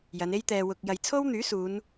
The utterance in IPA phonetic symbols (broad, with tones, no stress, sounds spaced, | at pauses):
j ɐ˨˧ n e˥ j t̪ ɛː˧ w ʊ˧ k̚ j ɐ˨ j t͡sʰ o˥ w n̪ yː˨˥ s uː˨˧ n